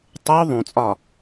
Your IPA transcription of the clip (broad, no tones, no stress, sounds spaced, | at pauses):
tˤ o ðˤ ũ t͡sʼ ɒ